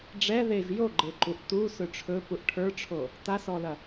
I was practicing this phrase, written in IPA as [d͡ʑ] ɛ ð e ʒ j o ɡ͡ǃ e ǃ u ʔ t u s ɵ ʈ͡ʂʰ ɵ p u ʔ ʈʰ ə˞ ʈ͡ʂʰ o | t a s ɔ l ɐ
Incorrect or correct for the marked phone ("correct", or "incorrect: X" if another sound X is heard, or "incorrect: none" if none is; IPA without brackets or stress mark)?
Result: incorrect: ɖ͡ʐ